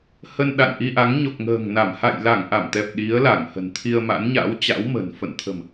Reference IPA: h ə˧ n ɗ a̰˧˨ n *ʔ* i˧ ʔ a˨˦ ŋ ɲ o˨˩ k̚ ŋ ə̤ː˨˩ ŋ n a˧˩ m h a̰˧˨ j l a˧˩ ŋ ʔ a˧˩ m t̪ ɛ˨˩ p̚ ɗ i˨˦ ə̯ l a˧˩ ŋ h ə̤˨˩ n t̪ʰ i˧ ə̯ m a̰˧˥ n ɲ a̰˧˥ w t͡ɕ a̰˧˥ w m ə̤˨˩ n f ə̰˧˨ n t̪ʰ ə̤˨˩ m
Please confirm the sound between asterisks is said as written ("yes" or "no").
yes